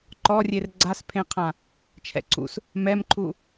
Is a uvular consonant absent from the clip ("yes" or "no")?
no